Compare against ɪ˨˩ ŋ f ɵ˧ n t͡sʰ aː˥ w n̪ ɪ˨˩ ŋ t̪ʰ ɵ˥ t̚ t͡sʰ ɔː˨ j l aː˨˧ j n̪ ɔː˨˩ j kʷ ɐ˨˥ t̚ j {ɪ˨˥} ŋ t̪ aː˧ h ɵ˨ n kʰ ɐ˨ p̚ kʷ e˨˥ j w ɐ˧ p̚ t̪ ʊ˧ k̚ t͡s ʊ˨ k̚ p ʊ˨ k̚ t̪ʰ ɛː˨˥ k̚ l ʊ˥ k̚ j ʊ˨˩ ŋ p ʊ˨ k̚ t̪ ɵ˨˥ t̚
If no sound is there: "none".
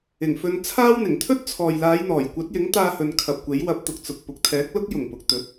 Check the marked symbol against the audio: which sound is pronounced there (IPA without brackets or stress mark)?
ɪ˨˥